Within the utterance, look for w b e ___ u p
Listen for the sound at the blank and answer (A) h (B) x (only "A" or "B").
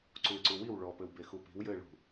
B